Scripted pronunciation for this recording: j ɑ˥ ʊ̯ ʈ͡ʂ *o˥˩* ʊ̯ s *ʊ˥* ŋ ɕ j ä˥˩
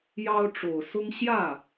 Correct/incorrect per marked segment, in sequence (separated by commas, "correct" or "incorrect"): incorrect, correct